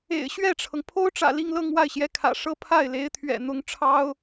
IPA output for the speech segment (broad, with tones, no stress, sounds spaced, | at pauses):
ḛ˨˩ ɪ̯ ɕ ɥ ɛ˥˩ ʈ͡ʂʰ ɤ˩ ŋ pʰ o˥ ʊ̯ ʈ͡ʂ ä̰˨˩ l i˥˧ ŋ l ɤ˥˧ ŋ w a˥˩ ɪ̯ ɕ j ɛ˧˥ kʰ ä̰˨˩ ʂ ɤ˥ pʰ a˥˩ ɪ̯ l e˧˥ ɪ̯ t̪ʰ ɥ ɛ̰˨˩ n̪ ʊ˧˥ ŋ ʈ͡ʂʰ ɑ˥ ʊ̯